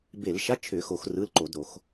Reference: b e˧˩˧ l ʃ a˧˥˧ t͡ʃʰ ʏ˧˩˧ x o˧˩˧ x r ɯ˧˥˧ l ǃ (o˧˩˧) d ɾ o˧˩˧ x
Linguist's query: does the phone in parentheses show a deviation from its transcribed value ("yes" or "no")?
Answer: no